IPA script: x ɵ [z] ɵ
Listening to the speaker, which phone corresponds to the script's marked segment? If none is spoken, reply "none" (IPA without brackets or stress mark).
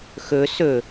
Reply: s